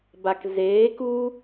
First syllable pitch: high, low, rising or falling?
low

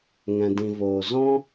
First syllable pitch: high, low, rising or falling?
low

